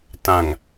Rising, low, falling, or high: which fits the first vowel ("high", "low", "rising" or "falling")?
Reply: low